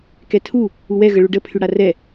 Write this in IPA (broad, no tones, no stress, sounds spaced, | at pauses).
k ɛ tʰ u | u w ɛ ɣ ə ɭ u ɖ ə pʰ y ɽ a r ɛ